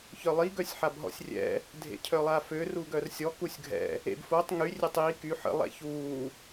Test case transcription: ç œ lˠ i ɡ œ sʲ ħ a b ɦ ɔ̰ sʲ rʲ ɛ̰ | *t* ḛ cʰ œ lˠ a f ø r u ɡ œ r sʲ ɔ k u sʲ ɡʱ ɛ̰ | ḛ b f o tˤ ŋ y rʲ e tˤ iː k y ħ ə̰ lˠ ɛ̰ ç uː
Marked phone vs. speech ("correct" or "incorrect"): incorrect